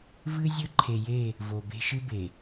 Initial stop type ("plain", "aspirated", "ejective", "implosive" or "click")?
click